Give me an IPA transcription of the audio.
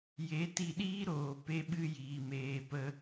j e˨˦ t i˧ ɗ iː˦ ɾ oː˨ p e˦ ɓ ɨ˦ j iː˨ m eː˨ p ə˧

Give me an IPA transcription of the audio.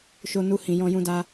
ʃ o˧ n u˧ h ĩ˨ j ɔ̃˧ j ũ˧ d a˧

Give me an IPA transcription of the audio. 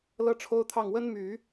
l ɤ˥ ʈ͡ʂʰ o˥ ʊ̯ t̪ʰ ɑ˥˩ ŋ w ə˥ n m y˨˩˦

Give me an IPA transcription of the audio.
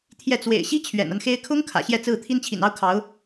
t̪ʰ j ɛ˥˩ t͡s w ḛ˨˩ ɪ̯ ɕ i˥ t͡ɕʰ ɥ ɛ̰˨˩ n a˦ n x e˥ ɪ̯ kʰ ʊ˥ ŋ kʰ ä̰˨˩ ɕ j ɛ˥˧ t͡s ɹ̩˥˩ t̪ʰ i˥ n t͡ɕʰ ḭ˨˩ n ɑ˥ ʊ̯ kʰ ɑ˧˥ ʊ̯

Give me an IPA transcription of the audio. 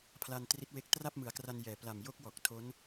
pʰ l a˧ n t r i˦˥ t̚ w e˦˥ k̚ t r a˥˩ p̚ m ɯ˩˦ a̯ k r a˧ n j ɛː˨˩ p l a˨˩ m j o˦˥ k̚ w ɔː˨˩ k̚ tʰ o˦˥ n

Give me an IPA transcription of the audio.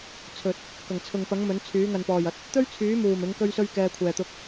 t͡sʰ ɵ˨ t̚ | k ɐ˨˩ ŋ t͡sʰ ʊ˨ ŋ p ɐ˨˥ ŋ m ɵ˨˥ n t͡sʰ yː˨˥ ŋ ɐ˨ n p ɔː˨˩ j ɐ˨ t̚ | t̪ ɵ˥ ɥ t͡sʰ yː˨˥ m uː˨˩ m ɪ˨˥ ŋ k ɵ˥ ɥ s ɵ˥ ɥ k ɛː˧ kʷʰ ɛː˨ t̪ ʊ˧ k̚

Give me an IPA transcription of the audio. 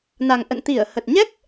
n a˨˩ ŋ ʔ ə̰˧˨ n t̪ i˧˩ ə̯ h ə˨˩ t̚ ɲ ɛ˦˥ k̚

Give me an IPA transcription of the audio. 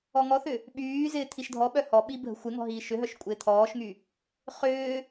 ɔ ŋ ɔ θ ʏ | ɓ yː z ɪː t̪ʰ i ʃ dʱ ɔ ɓ œ h ɔ ɓ i bʱ ə̤ xʷ ɪ ŋ ɔ̤ ɦ iː ʃ ʏ ɦ œ ʃ kʷʼ ɪː t̪ʰ ɔː ʃ ŋ y | χ ʏː

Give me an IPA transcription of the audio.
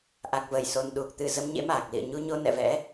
ʔ a˨˩ k̚ v ə˧˩ j s o˨˩ n ɗ u˨˩ k̚ t̪ ɨ˨˩ z ə˧ m ɲ ḛ˧˥ m aː˨˩ k̚ l ḭ˧˨ ə̯ ɲ u˧ ɲ o˧ n ɛ̰˧˨ v ɛ̰˧˥

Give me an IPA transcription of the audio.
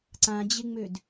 ǀ ã d͡ʑ ɪ ŋ͡m ø d

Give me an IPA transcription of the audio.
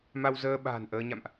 m a˧ w z əː˧ ɓ a̤ː˨˩ n ʔ əː˧ ɲ a̰˧˨ m ʔ

